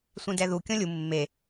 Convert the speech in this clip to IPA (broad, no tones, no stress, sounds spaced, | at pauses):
sʷ ẽ d ɛ ð u kʲ ɔ̃ lʲ u mː e